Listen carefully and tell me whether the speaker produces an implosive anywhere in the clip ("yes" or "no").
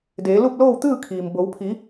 no